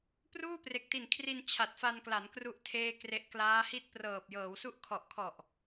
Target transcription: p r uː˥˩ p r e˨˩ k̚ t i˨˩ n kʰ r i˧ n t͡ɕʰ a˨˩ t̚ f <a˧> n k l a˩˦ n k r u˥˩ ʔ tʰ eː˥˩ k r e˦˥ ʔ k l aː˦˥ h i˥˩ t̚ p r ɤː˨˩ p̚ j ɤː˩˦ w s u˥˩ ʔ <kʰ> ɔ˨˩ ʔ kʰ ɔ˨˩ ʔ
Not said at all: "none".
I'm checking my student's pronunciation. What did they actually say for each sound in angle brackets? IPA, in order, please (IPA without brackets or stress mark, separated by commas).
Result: a˧, kʰ